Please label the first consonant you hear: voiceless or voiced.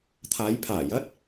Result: voiceless